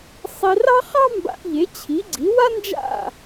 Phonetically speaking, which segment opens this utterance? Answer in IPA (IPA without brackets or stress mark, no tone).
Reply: sˤ